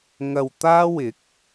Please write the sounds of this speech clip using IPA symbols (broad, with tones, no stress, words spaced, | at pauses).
ŋɐ˧wt̪aː˥wɪ˨˥k̚